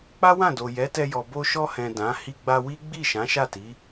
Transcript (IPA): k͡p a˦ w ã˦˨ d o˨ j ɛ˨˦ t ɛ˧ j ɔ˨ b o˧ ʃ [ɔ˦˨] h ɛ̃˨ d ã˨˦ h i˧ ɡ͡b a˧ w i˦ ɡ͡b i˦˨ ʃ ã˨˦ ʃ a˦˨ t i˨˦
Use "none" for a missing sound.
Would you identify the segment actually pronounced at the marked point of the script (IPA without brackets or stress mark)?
ɔ˧